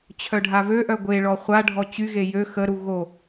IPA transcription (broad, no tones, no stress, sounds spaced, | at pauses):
t͡ɕʰ œ ɖʱ a β ø ʔ œ ɡʷ e ɭ ɔ χʷ a ɖʱ ɔ t͡ɕ y ɣ e j ø x ə ɾ u ɣ o